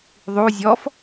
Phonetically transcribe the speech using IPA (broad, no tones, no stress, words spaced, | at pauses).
ðˤu zʲɔf